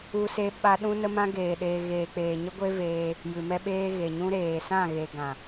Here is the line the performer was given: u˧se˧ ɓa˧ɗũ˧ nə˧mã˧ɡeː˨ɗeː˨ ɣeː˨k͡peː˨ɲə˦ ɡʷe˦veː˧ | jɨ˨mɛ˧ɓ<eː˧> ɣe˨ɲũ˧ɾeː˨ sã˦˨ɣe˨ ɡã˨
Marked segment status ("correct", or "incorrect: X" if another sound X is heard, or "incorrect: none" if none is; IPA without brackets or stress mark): correct